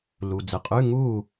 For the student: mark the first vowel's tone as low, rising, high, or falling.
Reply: low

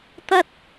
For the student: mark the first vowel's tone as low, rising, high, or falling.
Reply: high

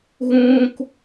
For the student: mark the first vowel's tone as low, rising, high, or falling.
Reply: high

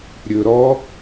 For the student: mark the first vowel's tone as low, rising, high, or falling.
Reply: low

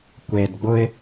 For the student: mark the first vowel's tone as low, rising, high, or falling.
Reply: low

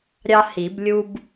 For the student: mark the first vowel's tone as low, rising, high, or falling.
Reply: high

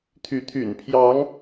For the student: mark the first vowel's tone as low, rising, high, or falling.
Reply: rising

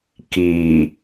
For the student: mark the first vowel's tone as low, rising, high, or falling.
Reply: low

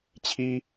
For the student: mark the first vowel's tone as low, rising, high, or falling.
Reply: high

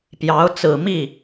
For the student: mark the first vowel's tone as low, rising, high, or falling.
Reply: rising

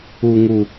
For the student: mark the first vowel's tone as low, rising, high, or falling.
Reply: low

